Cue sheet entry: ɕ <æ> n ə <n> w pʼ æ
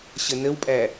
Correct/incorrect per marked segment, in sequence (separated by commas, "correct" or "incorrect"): incorrect, incorrect